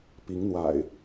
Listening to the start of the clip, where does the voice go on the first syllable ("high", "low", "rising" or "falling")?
rising